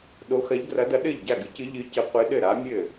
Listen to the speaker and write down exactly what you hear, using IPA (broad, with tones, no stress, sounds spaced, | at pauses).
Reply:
ɗ o˧˥ x ɐ˧˥ ʎ ɡ r ɐ˧˥ d ɐ˧˥ ɗ ɘ˥˩ ʎ ɟ a˥˩ ɡ ɨ˧˥ c ɨ˧˥ ʎ ɨ˧˥ c ɘ˧˥ qʷ ɨ˧˥ ɗ ɘ˥˩ ɾ a˧˥ mʲ ɘ˥˩